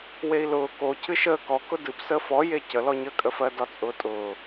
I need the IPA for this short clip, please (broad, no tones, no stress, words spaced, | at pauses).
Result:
wei̯lʊː ko cʰɨʃəː kɔkʊ dɨpsəː fɔje cəlɔɲəːkʼə fɜdɒt͡sʼʊːtʼʊː